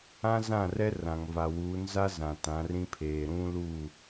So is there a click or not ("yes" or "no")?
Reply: no